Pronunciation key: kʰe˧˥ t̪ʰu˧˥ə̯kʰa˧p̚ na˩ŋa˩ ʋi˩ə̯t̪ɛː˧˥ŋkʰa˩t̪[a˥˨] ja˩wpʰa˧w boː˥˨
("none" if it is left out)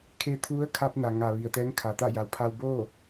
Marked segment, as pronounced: a˥˨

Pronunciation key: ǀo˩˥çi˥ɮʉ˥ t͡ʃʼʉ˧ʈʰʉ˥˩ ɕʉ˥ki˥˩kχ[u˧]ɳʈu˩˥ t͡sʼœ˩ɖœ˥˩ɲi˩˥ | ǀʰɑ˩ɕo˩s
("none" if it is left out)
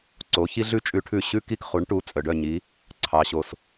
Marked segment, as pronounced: u˩˥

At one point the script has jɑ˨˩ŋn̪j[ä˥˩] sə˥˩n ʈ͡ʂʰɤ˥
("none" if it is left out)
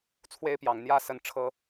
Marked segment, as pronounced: ä˥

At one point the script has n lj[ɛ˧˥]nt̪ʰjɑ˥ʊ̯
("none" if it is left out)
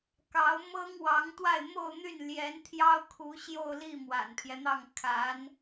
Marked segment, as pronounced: ɛ˧˥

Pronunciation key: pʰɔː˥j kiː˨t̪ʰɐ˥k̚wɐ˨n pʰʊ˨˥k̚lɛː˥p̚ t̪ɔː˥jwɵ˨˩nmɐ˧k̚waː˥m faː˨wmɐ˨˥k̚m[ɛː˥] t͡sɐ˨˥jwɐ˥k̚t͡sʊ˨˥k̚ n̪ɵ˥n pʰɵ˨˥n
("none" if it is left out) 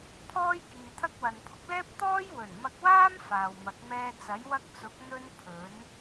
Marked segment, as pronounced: ɛː˥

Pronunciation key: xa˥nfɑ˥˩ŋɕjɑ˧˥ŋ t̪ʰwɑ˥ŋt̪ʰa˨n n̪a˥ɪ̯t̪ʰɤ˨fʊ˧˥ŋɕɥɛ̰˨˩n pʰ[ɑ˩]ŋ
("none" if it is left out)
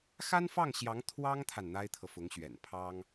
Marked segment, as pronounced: ɑ˥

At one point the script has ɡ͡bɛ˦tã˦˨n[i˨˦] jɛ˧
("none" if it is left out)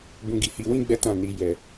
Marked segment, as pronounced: i˨˦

